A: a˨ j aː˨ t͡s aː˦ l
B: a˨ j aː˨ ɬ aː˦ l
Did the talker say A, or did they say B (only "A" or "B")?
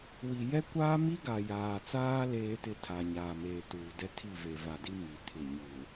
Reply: A